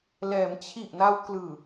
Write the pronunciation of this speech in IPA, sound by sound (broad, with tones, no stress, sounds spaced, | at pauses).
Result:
l ɛː˩˦ m t͡ɕʰ i˨˩ ʔ n a˧ w k l ɯː˨˩